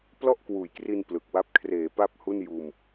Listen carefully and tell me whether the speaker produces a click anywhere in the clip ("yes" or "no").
no